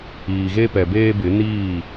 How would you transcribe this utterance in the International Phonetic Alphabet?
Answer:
iː˨ ɣ e˦ p ɛ˨ b eː˦ b ɪ˨˦ n iː˦˨

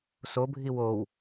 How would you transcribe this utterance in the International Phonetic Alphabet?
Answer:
s o bʱ i w o w

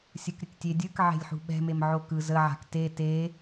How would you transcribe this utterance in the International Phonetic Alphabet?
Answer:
sʲ ɯ k ɾʲ ə k tʲ e dʲ ɯ k ʕ e̤ lʲ ħ ṳ ɓ ɛ̤ m e m ʕ o k ɯ z ə ʕ a̤ k t e t e

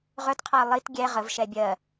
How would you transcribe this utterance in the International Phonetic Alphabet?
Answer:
ʁ œ t qʰ a ə̯ lˠ i t ɡʲ ɛ ʁ ə v ʃ ɛ bʲ ɜ

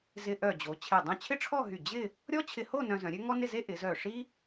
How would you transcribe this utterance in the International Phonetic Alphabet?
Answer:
z ɪ˧ ʔ œ˧˩ d͡ʑ o˩˧ t͡ɕʰ e˧˩ dˤ œ̃˥˧ t͡ɕʰ ɪ˥ ʈ͡ʂʰ ɔ˥˧ ɦ y˧˩ d͡ʑ ɪ˥˧ | ɾʲ ɔ˥ t͡ɕʰ ɪ˧ h o˥˧ n œ̃˧ z œ̃˩˧ ɾʲ ø˥ ŋ ɔ˥ n ɪ˥˧ z e˥ ʔ ɪ˩˧ z œ˧˩ ʂ i˥

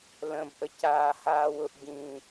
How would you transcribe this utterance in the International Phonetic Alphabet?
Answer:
l ə̃ b ʔ ə c aː h aː w ʊ ʔ ɟ ĩː

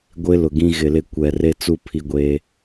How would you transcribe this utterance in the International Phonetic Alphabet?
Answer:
ɡʷ ɪ˦ l ʊ˨ ɡ ĩ˦ ɣ ɪ˨ l ɪ˦ kʷ ɛ˨ r e˦ t͡s u˦ pʰ i˦ ɡʷ eː˦

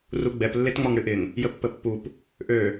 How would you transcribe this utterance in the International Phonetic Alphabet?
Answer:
r u ɡ͡b ɛ p lː e t ŋ͡m ɔ ŋ ɽ ɨ ʔ ɪ ŋ | j ə pː ə pː u p | ʔ ø

